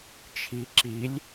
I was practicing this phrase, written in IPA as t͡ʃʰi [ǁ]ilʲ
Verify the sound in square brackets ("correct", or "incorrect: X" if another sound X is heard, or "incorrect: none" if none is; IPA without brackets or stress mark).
correct